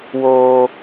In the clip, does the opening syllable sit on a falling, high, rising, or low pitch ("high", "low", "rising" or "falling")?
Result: high